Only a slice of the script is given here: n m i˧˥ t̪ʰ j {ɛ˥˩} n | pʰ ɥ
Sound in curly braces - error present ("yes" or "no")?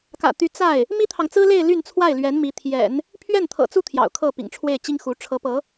yes